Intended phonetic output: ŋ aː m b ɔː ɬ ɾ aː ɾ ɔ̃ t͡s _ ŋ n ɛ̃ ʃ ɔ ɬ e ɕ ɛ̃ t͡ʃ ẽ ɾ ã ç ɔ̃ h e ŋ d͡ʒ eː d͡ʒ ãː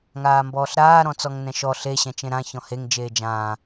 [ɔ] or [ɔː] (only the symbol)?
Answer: ɔ